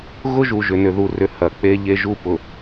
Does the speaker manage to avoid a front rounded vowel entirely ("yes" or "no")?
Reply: no